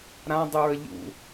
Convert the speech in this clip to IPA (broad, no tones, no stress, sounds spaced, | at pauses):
ɾ ã dˤ u ɹ ə ʎ ṵ